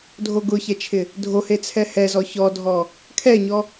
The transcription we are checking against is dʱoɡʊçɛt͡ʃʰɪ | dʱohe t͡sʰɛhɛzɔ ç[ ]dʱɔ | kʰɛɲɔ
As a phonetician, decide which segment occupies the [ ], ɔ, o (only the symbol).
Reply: ɔ